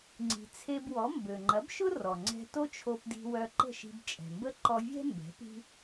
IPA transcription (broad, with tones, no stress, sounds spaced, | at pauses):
ŋ͡ǀ i̤˩ t͡sʰ e˧ b w ɔ˩˥ m b ø˩ ŋ͡ǃ ɐ˩˥ b ʃ ʊ˥ r ɔ˩ ŋ͡ǀ ɛ̤˧ t o˥ t͡ʃʰ o˧ p d i̤˧ w œ˧ ǃ ə̤˥˩ ʃ i̤˧ b t͡ʃʼ ɛ̤˩ m b ə˥ ǃ ɔ˧ vʲ ɛ̤˥ m b ɛ̤˩˥ p i̤˥